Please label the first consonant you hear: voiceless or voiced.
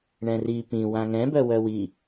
voiced